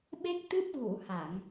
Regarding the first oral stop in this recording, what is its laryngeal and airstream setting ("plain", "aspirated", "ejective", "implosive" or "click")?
implosive